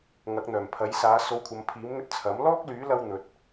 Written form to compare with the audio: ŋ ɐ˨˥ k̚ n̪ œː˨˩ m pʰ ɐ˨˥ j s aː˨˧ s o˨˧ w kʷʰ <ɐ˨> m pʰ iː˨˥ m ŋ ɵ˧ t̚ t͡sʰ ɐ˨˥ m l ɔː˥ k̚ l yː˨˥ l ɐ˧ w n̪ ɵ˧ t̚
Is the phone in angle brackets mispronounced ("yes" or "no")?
no